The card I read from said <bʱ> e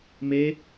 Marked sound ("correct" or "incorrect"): incorrect